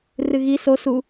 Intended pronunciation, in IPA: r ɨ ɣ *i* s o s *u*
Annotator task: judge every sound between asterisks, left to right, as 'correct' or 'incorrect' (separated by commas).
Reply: correct, correct